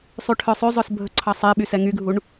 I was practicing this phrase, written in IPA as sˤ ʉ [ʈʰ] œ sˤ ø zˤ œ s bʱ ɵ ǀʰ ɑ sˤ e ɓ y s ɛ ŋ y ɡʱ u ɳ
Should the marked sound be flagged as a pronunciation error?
no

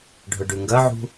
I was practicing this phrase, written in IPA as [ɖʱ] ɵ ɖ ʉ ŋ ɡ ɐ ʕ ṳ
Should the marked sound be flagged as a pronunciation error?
no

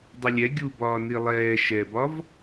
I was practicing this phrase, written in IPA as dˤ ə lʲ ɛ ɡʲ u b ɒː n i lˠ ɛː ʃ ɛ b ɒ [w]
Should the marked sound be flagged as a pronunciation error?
yes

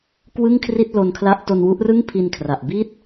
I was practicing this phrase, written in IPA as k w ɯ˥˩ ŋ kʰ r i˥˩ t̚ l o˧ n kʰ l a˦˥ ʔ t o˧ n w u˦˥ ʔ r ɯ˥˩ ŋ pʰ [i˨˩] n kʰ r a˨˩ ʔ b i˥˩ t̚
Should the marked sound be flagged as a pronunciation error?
yes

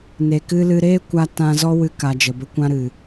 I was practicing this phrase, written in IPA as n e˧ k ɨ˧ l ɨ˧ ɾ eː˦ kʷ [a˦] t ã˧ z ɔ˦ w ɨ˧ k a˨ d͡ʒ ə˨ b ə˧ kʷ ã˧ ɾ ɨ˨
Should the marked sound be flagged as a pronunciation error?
no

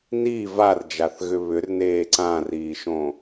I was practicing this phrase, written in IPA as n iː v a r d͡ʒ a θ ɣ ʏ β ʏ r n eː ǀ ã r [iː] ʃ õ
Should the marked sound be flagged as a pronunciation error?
no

